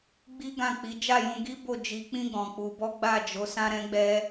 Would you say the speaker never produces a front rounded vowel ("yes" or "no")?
yes